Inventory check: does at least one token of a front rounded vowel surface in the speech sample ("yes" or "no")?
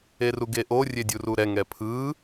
no